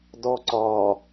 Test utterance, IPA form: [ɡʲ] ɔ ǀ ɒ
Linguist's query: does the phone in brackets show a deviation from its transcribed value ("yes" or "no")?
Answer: yes